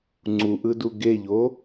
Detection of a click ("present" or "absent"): present